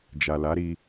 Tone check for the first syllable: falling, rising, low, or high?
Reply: low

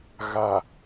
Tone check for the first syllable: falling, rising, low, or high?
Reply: low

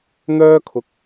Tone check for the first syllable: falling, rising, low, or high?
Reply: high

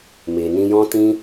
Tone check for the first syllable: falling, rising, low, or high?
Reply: low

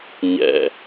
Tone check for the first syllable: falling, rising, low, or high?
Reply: high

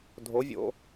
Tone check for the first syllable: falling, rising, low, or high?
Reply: rising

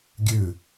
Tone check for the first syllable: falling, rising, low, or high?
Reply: falling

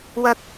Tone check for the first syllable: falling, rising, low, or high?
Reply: high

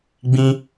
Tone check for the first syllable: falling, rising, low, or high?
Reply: high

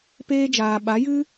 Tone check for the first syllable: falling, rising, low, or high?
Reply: high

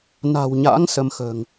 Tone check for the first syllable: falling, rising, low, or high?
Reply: low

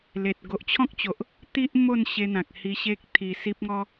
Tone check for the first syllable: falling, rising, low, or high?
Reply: low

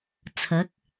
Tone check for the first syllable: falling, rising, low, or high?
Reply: rising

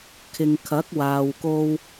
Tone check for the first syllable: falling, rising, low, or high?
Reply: low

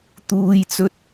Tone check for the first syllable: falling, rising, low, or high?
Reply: high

